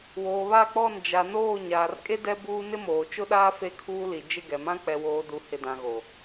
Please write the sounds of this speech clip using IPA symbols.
w oː˨ β a˦˨ k͡p ɔ˦˨ n d͡ʒ a˨ n oː˦˨ ɲ aː˨ r kʼ e˦ d ɛ˦ b uː˦ n ɪ˦ m oː˨ t͡ʃ ʊ˦ ɗ aː˦ f e˦ kʰ uː˦ l i˨ d͡ʒ ɪ˦˨ ɡ ɛ˨ m ã˦ k͡p ɛ˨ w oː˨ d u˨ h ɪ˨ d ã˨ ɣ o˨

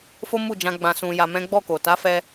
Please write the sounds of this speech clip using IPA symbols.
f o˦ m u˦˨ d͡ʒ ã˧ ɡ͡b ã˧ s ũ˧ j a˧ m ɛ̃˦ ɡ͡b ɔ˦˨ k o˨ t a˨˦ f ɛ˧

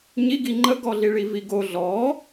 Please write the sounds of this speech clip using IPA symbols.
ɲ i ɡ i ŋ͡ǃ ə ɡ ɔ ɮ i ɭ i v i ɡ o ɮ ɔ

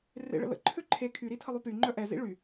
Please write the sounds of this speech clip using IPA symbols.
r ḛ ɭ ə̰ l ə̰ ǃʰ ø ǃʰ e kʰ y ɾ i tʰ ə lˠ y p y ŋ͡ǃ œ ʔ ɛ z ḭ ɭ y

